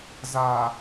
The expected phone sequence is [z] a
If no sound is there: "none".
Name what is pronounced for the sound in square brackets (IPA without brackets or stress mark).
z